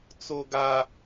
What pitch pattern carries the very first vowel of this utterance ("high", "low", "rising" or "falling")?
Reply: high